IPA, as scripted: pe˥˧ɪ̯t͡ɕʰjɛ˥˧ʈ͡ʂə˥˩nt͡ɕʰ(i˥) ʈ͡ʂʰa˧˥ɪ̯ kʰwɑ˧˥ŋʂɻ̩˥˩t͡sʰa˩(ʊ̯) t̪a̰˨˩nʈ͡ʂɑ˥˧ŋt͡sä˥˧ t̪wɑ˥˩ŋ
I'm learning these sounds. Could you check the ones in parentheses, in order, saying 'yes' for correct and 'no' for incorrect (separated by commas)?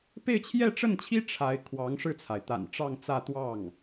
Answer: yes, no